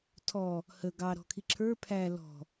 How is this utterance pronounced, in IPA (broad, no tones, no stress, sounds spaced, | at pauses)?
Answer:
tʰ ɔ | h ə ɡ ɑ ɾ ɔ̤ kʰ i ǁʰ ə˞ pʰ æ l ɔ̤